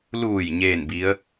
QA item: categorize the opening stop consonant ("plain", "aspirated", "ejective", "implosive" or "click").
plain